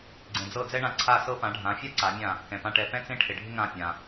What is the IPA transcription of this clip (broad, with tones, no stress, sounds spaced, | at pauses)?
ɡ͡ǀ ẽ˩ d͡z ɤ˥˩ d͡z ɛ˥ ɳ ã˧ ǀʰ a˥˩ s ɤ˥ p ã˩˥ ɖʱ ã˩˥ fʲ a˥ ǀ a˩˥ mʲ ã˥˩ | k ɛ̃˩ p ã˥˩ ʈ ɛ˧ p ɛ̃˥ t͡s ẽ˥ ʈʰ e˩ ɖʱ ɪ˥ ŋ ã˥˩ pʲ ã˩